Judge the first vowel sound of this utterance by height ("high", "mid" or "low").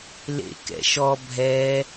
mid